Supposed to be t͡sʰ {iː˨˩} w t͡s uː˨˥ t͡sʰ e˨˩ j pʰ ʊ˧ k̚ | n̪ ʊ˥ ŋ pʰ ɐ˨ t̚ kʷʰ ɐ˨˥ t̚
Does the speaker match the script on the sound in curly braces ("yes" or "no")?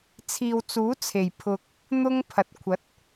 no